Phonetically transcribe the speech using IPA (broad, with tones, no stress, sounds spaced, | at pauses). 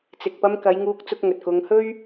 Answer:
t͡s ɪ˨ k̚ p ɐ˧ m k ɐ˨˧ j ŋ uː˧ k̚ t͡s ʊ˧ k̚ ŋ ɵ˨ t̚ k ʊ˧ ŋ h ɵ˥ ɥ